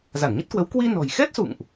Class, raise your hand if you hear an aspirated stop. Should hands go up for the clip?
no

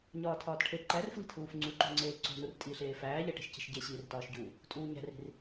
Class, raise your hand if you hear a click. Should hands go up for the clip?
yes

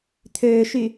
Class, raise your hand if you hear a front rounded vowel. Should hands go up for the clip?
yes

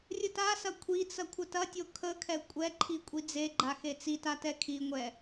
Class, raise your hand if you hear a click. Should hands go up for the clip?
yes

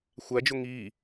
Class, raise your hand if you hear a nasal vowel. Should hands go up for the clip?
no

